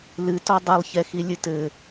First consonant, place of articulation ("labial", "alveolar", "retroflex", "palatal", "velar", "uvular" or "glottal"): alveolar